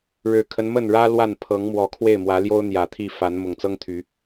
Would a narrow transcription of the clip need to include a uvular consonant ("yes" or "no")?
no